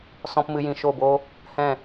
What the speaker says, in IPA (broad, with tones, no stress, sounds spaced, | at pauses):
s ɔ̃˧ p m ɨ˧ j ĩ˨ ʃ o˦˨ b o˦ | h ɛ̃˦˨